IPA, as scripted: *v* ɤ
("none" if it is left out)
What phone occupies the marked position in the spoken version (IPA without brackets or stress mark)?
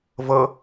v